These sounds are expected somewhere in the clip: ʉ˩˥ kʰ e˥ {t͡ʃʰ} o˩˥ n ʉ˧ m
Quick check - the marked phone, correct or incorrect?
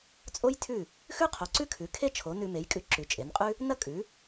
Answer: correct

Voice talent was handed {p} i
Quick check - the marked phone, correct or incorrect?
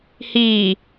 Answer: incorrect: h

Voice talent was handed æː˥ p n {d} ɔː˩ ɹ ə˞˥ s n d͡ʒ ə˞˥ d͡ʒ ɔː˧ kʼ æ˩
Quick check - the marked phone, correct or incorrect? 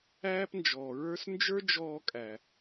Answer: incorrect: d͡ʒ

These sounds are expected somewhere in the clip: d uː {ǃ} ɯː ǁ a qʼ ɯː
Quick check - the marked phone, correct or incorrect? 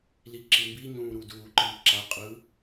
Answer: correct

